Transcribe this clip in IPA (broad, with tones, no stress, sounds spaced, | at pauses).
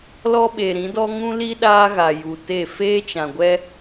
l ɔ˦ ɓ e˨ ɾ ĩ˨˦ d ɔ˦ ŋ ũ˦ l i˦ ɗ aː˦ ɣ a˨ j u˨ t e˦˨ f eː˦ t͡ʃ ã˨ ɡʷ ɛ˦